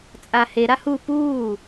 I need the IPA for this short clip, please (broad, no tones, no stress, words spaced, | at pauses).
t͡sʼahe ɾahu puː